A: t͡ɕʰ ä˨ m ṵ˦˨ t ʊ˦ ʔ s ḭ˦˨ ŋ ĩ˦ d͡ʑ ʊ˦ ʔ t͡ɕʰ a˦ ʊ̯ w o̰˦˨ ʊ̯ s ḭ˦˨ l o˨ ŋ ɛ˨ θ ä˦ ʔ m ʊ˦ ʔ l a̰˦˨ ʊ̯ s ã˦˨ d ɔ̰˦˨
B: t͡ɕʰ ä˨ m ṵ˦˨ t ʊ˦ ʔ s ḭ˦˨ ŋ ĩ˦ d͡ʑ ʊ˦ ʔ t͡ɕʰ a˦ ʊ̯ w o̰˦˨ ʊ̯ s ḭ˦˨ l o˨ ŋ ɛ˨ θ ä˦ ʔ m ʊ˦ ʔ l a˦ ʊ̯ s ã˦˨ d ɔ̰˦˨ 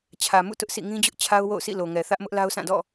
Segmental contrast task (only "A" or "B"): B